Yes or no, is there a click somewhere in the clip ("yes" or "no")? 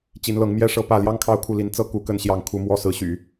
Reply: no